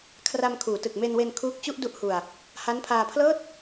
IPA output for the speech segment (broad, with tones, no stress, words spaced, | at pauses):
kʰra˧m kʰuː˩˦tɯ˨˩k̚me˧nwe˧n kʰuː˦˥k̚t͡ɕu˥˩ʔ du˥˩ʔhu˧a̯ | ha˦˥npʰaː˧pʰlɤː˥˩t̚